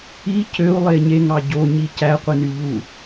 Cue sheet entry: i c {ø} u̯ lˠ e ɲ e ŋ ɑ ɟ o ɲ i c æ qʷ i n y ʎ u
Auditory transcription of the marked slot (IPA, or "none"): ø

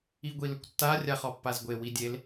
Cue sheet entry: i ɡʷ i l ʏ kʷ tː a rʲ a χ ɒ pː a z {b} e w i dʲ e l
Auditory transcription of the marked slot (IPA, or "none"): ɡʷ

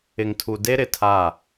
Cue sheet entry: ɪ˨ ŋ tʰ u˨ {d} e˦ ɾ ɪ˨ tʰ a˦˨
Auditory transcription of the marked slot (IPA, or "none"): d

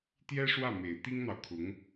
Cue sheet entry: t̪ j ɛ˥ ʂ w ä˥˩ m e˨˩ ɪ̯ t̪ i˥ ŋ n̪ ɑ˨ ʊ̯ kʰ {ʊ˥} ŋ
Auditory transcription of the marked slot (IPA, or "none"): ʊ˧˥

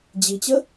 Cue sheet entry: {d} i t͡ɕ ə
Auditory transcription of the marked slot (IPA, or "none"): d͡ʑ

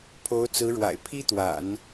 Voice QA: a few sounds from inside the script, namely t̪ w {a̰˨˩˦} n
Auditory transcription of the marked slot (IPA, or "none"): a̰˨˩˦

